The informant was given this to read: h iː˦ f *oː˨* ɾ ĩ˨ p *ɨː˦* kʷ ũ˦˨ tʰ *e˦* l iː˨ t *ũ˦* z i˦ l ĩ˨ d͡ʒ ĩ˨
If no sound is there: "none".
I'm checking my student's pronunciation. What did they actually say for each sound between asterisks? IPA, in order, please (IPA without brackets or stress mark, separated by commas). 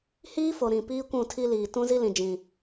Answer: o˨, iː˦, i˦, ũ˦